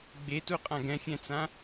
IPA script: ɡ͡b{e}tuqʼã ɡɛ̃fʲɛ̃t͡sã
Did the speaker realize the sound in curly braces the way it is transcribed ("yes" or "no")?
yes